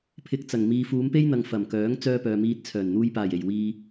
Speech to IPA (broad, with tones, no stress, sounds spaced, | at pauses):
pʰ ɪ˧ k̚ t͡s ɐ˨˩ ŋ m iː˨ f uː˨˧ m p e˥ j n̪ ɐ˨ ŋ f ɐ˨˩ m k œː˨˥ ŋ t͡s œː˥ p œː˨ m iː˧ t̚ t͡sʰ œː˨˩ n n̪ uː˧ j p aː˨˩ j e˨˩ j w iː˧